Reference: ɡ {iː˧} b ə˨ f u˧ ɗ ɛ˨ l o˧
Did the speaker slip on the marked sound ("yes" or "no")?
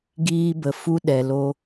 no